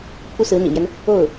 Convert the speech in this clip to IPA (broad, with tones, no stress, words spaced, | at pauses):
pʰu˥sɹ̩˧˥n̪ḭ˨˩mjɛ˦n | o˥˩ʊ̯